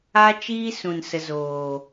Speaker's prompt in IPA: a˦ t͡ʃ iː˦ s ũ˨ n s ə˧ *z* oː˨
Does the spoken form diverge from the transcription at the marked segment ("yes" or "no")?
no